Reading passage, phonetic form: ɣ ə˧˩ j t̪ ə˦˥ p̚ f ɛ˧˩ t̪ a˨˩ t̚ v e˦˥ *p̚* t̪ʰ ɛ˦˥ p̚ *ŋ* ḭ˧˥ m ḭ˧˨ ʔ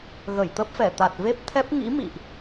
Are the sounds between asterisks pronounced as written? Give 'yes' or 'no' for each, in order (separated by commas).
yes, yes